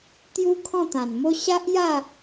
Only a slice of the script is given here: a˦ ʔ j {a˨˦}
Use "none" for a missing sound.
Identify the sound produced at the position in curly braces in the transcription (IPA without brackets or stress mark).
a˥˧